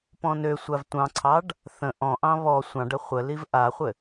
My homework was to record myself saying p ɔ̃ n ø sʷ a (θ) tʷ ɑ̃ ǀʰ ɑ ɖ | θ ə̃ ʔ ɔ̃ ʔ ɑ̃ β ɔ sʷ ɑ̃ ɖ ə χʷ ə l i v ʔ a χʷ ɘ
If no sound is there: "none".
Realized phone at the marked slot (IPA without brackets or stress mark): v